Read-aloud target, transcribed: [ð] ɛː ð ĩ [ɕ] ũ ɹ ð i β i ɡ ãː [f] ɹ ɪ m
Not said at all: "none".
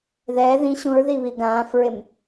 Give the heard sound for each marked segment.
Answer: ð, ɕ, f

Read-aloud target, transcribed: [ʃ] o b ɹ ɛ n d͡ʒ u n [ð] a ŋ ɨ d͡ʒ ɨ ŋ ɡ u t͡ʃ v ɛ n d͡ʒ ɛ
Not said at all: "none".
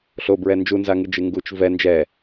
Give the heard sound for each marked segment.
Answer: ɬ, z

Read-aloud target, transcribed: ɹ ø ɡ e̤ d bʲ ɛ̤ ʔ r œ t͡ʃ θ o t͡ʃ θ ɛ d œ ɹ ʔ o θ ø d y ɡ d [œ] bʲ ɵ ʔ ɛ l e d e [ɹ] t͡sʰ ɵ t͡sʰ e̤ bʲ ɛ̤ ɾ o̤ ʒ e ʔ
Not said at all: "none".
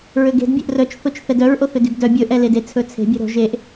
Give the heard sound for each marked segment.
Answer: œ, none

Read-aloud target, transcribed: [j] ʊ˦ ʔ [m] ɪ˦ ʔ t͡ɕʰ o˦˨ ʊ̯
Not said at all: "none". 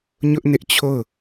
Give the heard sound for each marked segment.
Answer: ɲ, n

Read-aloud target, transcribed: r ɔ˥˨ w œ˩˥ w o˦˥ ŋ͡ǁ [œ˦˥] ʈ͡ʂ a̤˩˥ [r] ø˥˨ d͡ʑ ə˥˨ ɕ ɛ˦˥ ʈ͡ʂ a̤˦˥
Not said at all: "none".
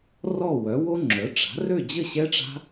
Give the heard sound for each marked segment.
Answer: œ˩˥, r

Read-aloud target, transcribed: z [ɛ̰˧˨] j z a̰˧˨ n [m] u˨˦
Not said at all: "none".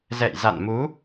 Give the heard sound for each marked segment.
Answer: ɛ̰˧˨, m

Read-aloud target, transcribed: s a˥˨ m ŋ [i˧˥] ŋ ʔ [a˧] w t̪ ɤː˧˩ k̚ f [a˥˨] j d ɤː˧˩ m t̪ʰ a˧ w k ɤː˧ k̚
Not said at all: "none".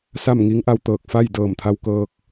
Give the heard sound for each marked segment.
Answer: i˧˥, a˧, a˥˨

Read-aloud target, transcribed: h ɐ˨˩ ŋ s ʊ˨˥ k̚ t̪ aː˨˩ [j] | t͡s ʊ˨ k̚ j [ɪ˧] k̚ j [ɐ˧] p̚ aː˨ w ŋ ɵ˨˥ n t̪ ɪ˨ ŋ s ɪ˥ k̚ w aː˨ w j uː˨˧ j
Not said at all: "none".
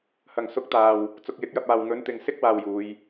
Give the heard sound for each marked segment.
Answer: w, ɪ˨˥, ɐ˧

